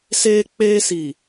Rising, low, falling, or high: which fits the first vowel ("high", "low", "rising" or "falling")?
high